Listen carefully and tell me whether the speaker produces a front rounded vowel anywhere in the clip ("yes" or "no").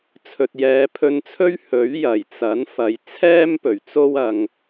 no